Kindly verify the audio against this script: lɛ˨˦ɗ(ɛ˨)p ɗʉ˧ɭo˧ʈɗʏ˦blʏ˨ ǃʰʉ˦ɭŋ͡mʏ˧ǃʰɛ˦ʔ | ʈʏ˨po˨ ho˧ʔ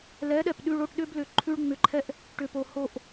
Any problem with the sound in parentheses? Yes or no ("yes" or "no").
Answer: no